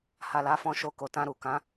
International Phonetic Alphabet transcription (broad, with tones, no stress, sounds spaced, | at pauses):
h a˨ l a˨˦ f ɔ̃˧ ʃ o˧ k o˨ t ã˧ ɾ u˨ k ã˨˦